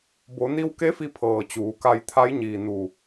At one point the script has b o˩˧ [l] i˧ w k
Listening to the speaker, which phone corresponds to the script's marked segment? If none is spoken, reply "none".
n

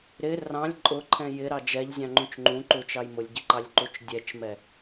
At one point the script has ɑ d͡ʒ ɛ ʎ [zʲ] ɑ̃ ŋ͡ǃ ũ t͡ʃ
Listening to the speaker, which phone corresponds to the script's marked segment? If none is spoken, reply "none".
zʲ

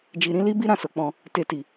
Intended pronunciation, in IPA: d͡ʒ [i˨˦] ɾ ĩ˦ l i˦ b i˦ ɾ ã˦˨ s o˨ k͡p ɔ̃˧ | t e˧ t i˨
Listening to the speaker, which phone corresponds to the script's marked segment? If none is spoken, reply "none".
i˧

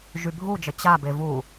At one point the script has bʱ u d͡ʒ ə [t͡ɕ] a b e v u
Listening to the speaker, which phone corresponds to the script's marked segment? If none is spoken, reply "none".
t͡ɕ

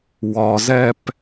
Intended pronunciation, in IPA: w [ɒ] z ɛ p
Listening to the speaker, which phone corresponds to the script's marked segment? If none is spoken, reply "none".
ɒ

